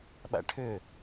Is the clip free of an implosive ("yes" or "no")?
no